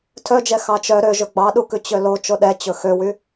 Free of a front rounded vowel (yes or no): no